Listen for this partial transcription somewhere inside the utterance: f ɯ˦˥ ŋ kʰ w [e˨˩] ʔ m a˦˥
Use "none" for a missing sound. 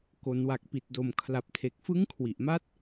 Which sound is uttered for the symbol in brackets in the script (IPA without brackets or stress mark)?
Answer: i˨˩